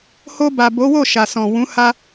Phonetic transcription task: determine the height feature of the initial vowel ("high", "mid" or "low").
mid